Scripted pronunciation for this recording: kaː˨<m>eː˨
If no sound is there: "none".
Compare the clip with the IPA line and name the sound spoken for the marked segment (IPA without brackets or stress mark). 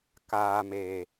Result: m